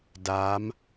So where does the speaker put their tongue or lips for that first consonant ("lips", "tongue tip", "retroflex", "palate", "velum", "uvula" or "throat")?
tongue tip